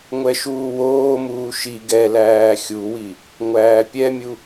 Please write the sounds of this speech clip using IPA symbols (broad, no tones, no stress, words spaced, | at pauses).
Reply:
ŋʷɛʃuːwoːmuː ʃi ɡɛlæː xʲuwi | ŋʷæːpʲɛmʲu